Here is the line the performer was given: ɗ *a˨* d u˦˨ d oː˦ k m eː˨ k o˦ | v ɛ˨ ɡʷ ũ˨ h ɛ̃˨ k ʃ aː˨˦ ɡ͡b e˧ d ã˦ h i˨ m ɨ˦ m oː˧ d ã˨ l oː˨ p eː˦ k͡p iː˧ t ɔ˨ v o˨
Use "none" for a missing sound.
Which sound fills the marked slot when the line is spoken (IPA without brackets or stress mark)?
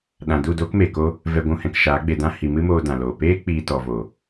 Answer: ã˨